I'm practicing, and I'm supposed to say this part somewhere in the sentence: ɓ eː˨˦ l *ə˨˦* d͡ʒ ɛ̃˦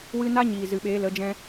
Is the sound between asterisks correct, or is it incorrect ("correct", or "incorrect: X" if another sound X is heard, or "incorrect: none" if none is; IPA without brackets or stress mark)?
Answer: correct